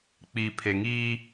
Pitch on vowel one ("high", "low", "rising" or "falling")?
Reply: low